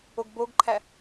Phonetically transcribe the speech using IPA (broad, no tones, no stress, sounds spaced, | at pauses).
o ɡ b o ɡ ǃʰ æ